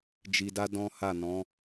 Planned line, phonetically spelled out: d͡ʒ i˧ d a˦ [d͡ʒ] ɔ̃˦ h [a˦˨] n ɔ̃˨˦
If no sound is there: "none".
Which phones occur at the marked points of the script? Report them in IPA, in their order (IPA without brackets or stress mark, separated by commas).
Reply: d, a˦˨